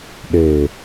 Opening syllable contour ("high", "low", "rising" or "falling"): low